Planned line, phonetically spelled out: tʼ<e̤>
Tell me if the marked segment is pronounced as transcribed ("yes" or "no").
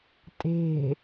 yes